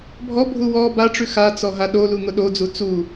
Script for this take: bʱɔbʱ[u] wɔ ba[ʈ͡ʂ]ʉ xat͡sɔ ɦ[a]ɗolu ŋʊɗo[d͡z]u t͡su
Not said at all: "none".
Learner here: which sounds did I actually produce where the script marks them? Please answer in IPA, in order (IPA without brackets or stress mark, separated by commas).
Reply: u, ʈ͡ʂ, a, d͡z